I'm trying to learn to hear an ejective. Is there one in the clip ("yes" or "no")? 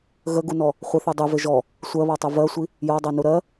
no